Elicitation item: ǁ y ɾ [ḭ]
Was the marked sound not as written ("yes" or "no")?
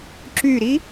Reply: yes